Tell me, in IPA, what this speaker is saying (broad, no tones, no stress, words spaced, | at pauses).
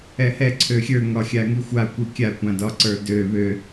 ɛhɛ ǀʰøxʲə˞ŋɒ xʲaŋixʷakʷi kʲakʷãdɒǀə˞ dø βø